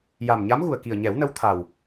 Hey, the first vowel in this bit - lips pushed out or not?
no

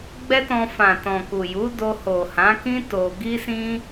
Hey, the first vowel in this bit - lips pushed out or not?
no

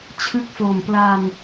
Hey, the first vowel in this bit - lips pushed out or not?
no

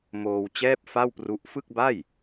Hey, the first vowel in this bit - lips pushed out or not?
yes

